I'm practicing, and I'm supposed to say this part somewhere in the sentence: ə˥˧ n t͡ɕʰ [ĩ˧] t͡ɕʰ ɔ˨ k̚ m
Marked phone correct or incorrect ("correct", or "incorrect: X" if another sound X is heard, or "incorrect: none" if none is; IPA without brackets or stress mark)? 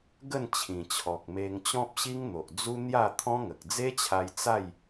incorrect: ĩ˨˩